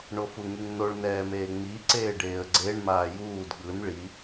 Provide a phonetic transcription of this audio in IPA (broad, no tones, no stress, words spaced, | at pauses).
ɳofuŋiŋnoɭ nɛːmeːŋ͡mi ǀeːɖeːə̯ɡ͡ǀeɳ maːjuːd ɠɯn ɭi